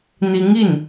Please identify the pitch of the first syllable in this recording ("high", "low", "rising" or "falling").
rising